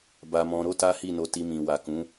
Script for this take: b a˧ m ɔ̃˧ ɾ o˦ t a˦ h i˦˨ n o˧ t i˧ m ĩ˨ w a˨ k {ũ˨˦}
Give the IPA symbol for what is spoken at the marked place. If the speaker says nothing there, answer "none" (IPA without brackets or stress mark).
ũ˨˦